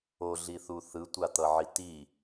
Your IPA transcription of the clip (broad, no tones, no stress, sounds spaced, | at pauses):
o ɮ i θ u θ ɯ tʷ a t̪ ʌ ʕ i t i